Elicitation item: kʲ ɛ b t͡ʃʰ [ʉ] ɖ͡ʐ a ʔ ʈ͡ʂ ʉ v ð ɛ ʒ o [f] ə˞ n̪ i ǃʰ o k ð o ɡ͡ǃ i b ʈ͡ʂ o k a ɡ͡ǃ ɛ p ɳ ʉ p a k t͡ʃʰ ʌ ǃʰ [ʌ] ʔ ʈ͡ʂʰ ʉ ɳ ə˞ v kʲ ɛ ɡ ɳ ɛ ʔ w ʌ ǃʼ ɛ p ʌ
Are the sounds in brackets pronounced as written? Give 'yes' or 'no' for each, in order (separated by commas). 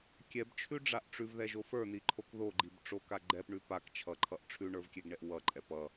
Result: yes, yes, yes